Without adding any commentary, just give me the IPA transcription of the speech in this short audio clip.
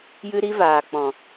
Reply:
j ɨ˦ ɾ i˦ v aː˨ k͡p ɔ̃˨

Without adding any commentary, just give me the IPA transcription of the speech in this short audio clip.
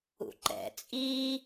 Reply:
ṵ ǃ ɛ̰ t͡sʼ i

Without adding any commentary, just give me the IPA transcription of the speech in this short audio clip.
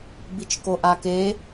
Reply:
b i t͡ʃ k o ʔ a k e

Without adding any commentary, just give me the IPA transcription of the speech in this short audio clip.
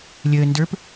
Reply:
lʲ əː n d ə˞ p

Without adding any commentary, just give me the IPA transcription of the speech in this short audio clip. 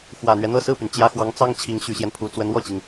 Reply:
x w ä˨˩ n̪ ɥ ɛ˦ n̪ ɤ˥˧ s ɹ̩˥˩ p y˩ n t͡ɕ j ä˧˥ x w ɑ˧˥ ŋ t͡s ɑ˥ ŋ t͡ɕʰ i˧˥ ŋ ɕ y˨˩ ɕ j ɛ˦ n pʰ u˨˩ t͡s w ə˧˥ n w ɔ˥˩ t͡ɕ i˩ ŋ

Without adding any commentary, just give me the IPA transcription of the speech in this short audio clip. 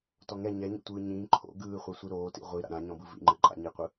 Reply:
t ɔ ŋ ɛ ɲ ɛ ɲ o̰ tʷ ɯː ɲ ĩː ǃʰ o̰ ɡ ɯː χʷ ɛ sʷ i ɾ oː t ḭ ʁʷ i ɾ a̰ ɾ ã ɲ ɔ̃ b ɯ v ḭ ŋ͡ǃ ɯ ǃʼ a̰ ɲ i qʷ ɯ

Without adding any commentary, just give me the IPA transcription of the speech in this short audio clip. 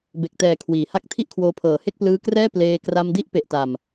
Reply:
b e˨˩ k̚ t ɛː˨˩ kʰ w iː˨˩ h a˥˩ k̚ tʰ i˥˩ ʔ kʰ w oː˧ pʰ ɤː˨˩ h e˥˩ k̚ p l ɯː˦˥ k r ɛː˥˩ p l eː˧ k r a˧ m d i˥˩ ʔ p e˨˩ ʔ t a˨˩ m

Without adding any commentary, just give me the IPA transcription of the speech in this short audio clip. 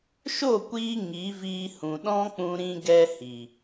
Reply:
ʃ o˦˨ kʷ iː˧ ŋ i˨˦ v iː˧ h ũ˨ ɗ ɔ̃˦ k͡p ũ˧ ɾ ĩ˦ ɡ ɛ˦ h i˨

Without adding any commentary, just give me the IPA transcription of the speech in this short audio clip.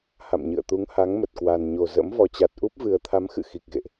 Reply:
h a̰˧˨ m ɲ ɨ̰˧˨ ə̯ t̪ u˨˦ ŋ h a˨˦ ŋ m ə˨˩ t̚ k w a˨˩ n ɲ o˨˩ z ə̰˧˥ m v ɔ˨˩ t͡ɕ a˨˩ t̚ ʔ u˦˥ p̚ v ɨ˨˩ ə̯ t̪ʰ a˨˦ m x ɨ̰˧˨ x i˨˩ k̚ ɣ ḛ˧˨ ʔ

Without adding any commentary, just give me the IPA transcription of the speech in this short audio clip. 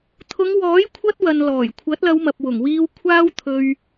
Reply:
t̪ʰ ʊ˨˧ ŋ w ɔː˨˥ j kʷʰ ɐ˧ t̚ w ɐ˨ n l ɔː˨˩ j kʷʰ ɐ˨˥ t̚ l ɐ˨˧ w m ɐ˨ p̚ w ʊ˨˩ ŋ w iː˧ w kʷʰ aː˥ w t̪ʰ ɵ˧ ɥ

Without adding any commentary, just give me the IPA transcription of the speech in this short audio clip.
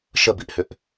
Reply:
ʃ ə b i ʔ h ʏ ʔ

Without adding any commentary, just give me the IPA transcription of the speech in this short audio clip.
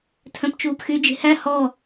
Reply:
tʰ œ̃ p t͡ʃ uː p x y d͡ʒ e̤ h æ h ɔ

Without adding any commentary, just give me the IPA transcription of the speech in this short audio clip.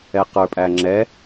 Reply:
ɛ q ə˞ pʼ æ ŋ͡ǁ ɛ

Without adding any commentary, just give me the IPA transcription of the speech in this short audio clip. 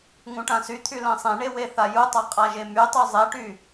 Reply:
ŋ ũ ʈ ã s y t̪ʰ y l ɛ̃ sˤ ẽ ɳ e w e θ a j u tˤ a qʼ a ʒ e m y tˤ u zˤ e ʈ y

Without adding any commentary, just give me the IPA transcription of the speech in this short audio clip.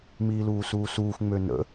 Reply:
m iː l uː s uː s uː x ŋ͡m ø n ə̰

